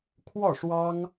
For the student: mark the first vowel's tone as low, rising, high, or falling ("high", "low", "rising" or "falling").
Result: falling